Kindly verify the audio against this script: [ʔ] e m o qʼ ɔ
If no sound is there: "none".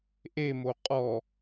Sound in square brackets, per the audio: ʔ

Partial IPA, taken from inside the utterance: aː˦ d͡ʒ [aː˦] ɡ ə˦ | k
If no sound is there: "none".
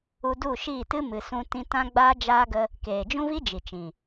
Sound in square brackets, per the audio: aː˦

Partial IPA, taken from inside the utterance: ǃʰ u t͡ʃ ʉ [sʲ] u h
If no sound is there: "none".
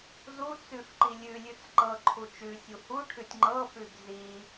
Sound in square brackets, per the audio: sʲ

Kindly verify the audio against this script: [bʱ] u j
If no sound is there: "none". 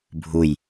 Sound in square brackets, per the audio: bʱ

